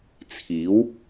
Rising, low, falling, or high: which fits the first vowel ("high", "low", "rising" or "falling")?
rising